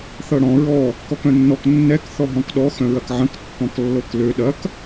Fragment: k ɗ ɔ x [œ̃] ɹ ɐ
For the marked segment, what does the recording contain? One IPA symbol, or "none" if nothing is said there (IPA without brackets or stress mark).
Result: œ̃